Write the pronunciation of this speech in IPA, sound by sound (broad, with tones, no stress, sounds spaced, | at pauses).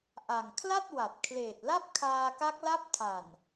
ʔ a˨˩ ŋ kʰ l a˥˩ t̚ w a˨˩ t̚ kʰ l eː˨˩ t̚ l a˥˩ p̚ kʰ aː˧ k a˦˥ k̚ l a˦˥ p̚ tʰ a˨˩ n